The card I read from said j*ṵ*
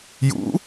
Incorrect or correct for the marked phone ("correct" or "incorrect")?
correct